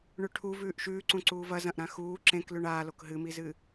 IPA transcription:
ɳ ʉ ʈʰ u v ʉː ʔ ʃ ʉː ǀ ũ ǀ uː v ɐ z ɐ̃ ʔ ɾ ã x uː ǁ ẽ k l ʉ ɳ aː l o k ɦ ɨ m i z ɨ

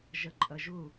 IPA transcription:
ʒ ɐ ǃʼ ɐ ʒ ʊ

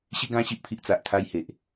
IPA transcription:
ɕ i˧ ɡ ã˧ ɕ i˨ ʔ pʰ i˨ ʔ t͡s a˨ ʔ t̪ʰ a˧ j h e˨ ʔ

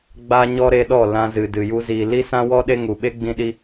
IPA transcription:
ɡ͡b aː˦ ɲ ɔ˦ ɾ e˧ ɗ ɔ˦˨ l ã˧ z ɨ˨ d ɨ˨ j u˧ z iː˨ l i˦ s ã˦ w ɔ˦ ɗ e˦ ŋ u˨ ɓ e˦ ɡ͡b ĩ˧ ɗ i˧

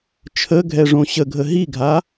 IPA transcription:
t͡ʃʰ ə ɡʱ ɛ ʐ õ ɕ ə ɡʱ ə ɦ i ɡʱ a

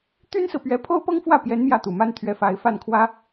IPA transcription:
t̪ y˥ n s ɹ̩˨ p ɥ ɛ˧˥ pʰ o˥ ʊ̯ p ɤ˥ ŋ f w ä˥˩ p j ɛ˧˥ n m j ä˥˩ t̪ u˨˩ m a˥ n t̪ʰ ɥ ɛ˧˥ f a˧˥ ɪ̯ f a˥˩ n kʰ w ä˥

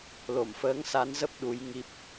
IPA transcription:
l o˧˩ m f əː˨˦ ŋ s a˨˦ n z ə˦˥ p̚ ɗ u˨˦ j ŋ i˦˥ p̚

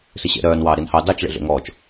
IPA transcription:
s i ɕ ḛ ɾ œː n w ɑː ɾ i n h ɑ d ɑ t͡ʃ ɭ ḛ ɮ ḛ ŋ ɔː t͡ʃ

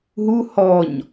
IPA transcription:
ɦ u h ɔ ɲ

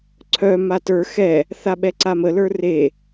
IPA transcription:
ǀʰ œ m a t ə˞ x ɛ | θ a ɓ ɛ ǀ a m ə l ə˞ r e

